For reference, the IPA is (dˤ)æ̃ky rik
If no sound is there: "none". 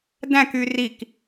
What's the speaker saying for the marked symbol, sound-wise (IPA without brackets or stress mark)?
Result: d